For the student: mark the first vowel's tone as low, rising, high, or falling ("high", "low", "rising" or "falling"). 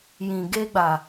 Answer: low